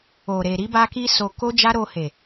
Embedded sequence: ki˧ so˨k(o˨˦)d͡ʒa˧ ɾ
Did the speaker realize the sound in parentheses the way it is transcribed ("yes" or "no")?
no